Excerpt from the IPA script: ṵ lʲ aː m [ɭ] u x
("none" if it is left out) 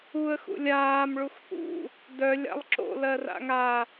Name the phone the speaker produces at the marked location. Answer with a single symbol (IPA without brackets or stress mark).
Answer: ɭ